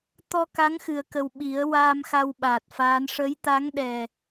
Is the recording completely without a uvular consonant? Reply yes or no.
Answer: yes